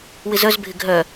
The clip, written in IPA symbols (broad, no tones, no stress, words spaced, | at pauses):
wɪzœzbʱɪ ɡʱœ